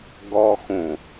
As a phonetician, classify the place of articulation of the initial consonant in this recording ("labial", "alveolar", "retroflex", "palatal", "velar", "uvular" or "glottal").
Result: velar